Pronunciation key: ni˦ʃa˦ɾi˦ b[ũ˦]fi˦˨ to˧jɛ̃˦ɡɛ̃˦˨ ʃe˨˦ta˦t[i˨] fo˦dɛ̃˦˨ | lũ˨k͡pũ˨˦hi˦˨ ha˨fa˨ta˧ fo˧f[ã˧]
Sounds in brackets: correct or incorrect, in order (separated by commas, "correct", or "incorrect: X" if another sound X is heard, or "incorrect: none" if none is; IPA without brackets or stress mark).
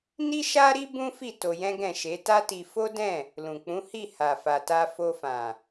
correct, incorrect: i˧, incorrect: ã˨